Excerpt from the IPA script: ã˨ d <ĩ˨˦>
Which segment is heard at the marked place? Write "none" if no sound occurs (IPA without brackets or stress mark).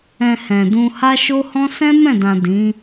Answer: ĩ˨˦